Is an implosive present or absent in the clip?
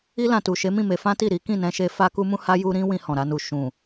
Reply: absent